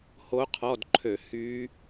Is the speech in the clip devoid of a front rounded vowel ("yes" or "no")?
no